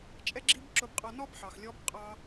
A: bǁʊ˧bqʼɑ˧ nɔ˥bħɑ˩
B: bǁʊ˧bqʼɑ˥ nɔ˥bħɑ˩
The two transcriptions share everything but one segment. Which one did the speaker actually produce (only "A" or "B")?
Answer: A